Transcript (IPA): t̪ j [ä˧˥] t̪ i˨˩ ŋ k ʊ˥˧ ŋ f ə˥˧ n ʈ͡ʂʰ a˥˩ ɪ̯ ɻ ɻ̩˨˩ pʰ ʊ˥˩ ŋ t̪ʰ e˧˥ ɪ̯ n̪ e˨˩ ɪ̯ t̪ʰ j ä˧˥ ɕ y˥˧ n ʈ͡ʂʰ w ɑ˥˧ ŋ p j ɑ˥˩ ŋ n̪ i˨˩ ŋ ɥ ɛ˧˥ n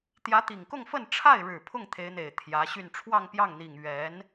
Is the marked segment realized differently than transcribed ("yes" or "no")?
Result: no